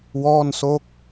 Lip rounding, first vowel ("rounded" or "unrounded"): rounded